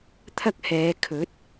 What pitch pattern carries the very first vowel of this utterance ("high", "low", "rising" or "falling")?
high